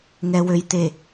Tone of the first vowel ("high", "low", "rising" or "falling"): low